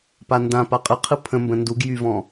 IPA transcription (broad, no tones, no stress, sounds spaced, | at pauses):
p a n d ã p a qʼ ə qʰ ɯ pʰ ə̃ m b ə̃ n d u ɡ j y v ɔ̃